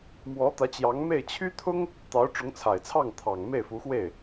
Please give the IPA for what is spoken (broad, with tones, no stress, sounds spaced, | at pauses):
m w ɔ˧˥ t̪ ä˧˥ t͡ɕ j ɑ˧˥ ŋ m e˥˩ ɪ̯ t͡ɕʰ y˥ t̪ʰ ʊ˥ ŋ | t̪ ɑ˧˥ ʊ̯ ʈ͡ʂ ʊ˧˥ ŋ t͡sʰ a˨˩ ɪ̯ t͡sʰ ɑ˥˩ ŋ t̪ʰ ɑ˨˩ ŋ m e˥˩ ɪ̯ f u˧˥ x w e˥˩ ɪ̯